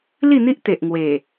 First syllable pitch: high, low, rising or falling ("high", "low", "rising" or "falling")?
falling